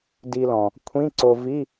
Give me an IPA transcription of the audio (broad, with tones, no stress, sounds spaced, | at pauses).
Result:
d i˧ l ɔ̃˩ | kʷʰ ĩ˧˥˧ ǀ o˧ v i˧˥˧